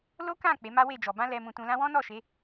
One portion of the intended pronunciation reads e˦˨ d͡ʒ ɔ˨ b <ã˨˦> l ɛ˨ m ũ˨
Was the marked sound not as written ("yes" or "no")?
yes